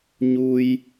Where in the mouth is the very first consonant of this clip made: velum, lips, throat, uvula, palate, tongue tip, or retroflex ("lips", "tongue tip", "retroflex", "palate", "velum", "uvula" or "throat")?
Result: palate